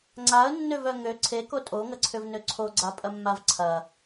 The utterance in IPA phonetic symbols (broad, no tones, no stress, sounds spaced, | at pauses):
ŋ͡ǀ a ə̯ nː ø v œ ŋ ø ǀʰ e k o tʼ o ŋ ɐ ǀʰ ʏ v n ø ǀʰ o ɡ͡ǀ a pʼ ɐ mː a v ǀʰ ɐ